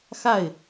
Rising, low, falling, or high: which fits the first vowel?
falling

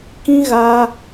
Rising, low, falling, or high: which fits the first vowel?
high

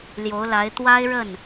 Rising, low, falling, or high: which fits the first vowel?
rising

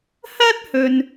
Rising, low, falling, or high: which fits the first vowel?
high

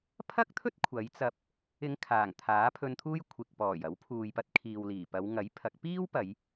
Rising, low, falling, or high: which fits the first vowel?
high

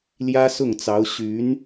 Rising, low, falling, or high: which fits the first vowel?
high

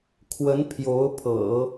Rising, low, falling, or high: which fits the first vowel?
rising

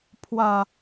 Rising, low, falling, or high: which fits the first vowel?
low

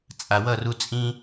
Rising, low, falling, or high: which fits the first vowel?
low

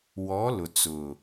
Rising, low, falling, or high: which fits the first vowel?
rising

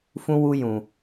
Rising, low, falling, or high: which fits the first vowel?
high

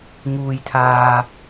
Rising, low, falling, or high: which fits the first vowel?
low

